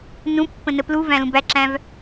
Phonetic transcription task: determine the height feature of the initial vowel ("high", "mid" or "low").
high